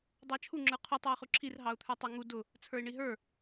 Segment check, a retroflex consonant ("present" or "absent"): present